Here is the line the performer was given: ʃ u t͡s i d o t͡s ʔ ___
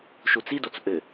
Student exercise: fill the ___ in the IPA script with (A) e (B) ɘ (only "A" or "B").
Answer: B